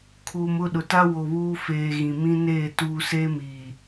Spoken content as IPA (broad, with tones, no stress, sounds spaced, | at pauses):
kʰ uː˨ m ʊ˦˨ ɗ ʊ˨ t a˦ w o˨ β uː˦ f eː˨ ɣ ĩ˨ m ĩ˦ n eː˦˨ t uː˨ s eː˦ m iː˨